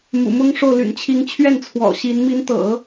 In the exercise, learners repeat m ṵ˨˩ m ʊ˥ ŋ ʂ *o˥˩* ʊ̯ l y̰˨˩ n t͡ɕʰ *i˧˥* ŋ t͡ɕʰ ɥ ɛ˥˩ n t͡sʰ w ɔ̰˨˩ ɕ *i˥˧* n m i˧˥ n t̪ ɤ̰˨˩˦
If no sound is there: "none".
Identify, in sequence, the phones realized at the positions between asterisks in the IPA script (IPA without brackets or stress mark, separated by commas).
o˥˩, i˧˥, i˧˥